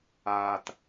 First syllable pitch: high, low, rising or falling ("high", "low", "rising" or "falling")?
low